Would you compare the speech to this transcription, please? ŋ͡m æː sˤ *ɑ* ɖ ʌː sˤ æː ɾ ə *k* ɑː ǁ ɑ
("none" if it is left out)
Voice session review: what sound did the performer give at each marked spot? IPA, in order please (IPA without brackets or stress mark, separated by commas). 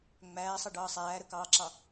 ʌ, k